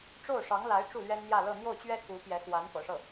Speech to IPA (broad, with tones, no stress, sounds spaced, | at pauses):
ʈ͡ʂ o˥˩ ʊ̯ ʂ ɑ˧˥ ŋ l a˧˥ ɪ̯ ʈ͡ʂ u˥˩ l ɥ ɛ˥ n n̪ j ä˥˧ l ɤ˥˧ n̪ j o˥˩ ʊ̯ t͡ɕ ɥ ɛ˥ k u˧˥ p j ɛ˧˥ x w a˧˥ n p ɤ̰˨˩ ʂ ɤ˥˩